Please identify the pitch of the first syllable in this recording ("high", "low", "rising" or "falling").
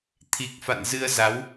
low